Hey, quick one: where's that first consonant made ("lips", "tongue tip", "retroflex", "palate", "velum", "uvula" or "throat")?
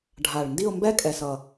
retroflex